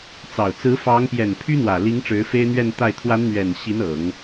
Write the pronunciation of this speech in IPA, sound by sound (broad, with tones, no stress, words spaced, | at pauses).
t͡sɑ˨˩ʊ̯ t͡sɹ̩˧˥fɑ˧˥ŋpjɛ˨˩n pʰy˥n̪wä˨˩li˧˥ŋ ʈ͡ʂɻ̩˧˥fe˥ɪ̯n̪ɥɛ˥˧nt̪a˥˩ɪ̯ t̪ʰwa˧˥nn̪ɥɛ˨˩n ɕi˧˥nɤ˨˩˦ŋ